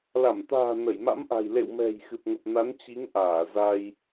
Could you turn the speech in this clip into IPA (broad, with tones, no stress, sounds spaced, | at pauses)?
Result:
l a˧˩ m t̪ a̤ː˨˩ n ə˧˩ j m a̰˧˥ m ʔ a̤˨˩ j l ḛ˧˨ w m ɛ̤˨˩ j x ɨ˨˩ p̚ ŋ ə˨˩ p̚ n a˨˦ n t͡ɕ i˨˦ ŋ ʔ aː˧˩ z a˧ j